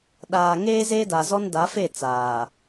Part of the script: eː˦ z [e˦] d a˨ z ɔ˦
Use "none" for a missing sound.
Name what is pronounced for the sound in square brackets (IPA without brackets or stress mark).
eː˦